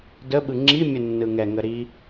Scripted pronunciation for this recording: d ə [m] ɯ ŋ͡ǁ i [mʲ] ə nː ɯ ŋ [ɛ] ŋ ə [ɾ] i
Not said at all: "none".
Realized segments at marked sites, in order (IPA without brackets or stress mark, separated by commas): ɓ, mʲ, ɛ, ɾ